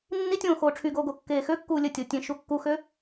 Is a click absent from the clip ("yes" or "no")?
yes